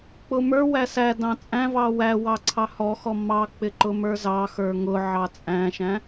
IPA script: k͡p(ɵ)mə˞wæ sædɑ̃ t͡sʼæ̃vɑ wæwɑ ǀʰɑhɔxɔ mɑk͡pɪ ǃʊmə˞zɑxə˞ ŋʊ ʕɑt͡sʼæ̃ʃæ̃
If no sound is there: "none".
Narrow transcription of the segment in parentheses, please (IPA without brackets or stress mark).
ʊ